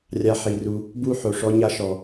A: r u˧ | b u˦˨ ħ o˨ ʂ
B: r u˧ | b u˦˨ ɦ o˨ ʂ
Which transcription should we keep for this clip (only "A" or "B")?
A